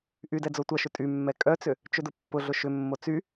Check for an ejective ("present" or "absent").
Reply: present